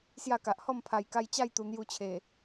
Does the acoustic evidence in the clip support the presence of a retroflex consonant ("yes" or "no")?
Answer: no